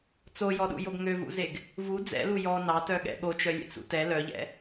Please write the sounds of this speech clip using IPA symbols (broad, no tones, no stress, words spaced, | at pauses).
t͡sojɔɗṵjoɡ ŋøvṵzeɡ | vu d͡zɛ̰lu jɔ nɑtœɠɛ̰ ɠot͡ʃœlʲḛt͡sṵ tɛ lœʎɛ̰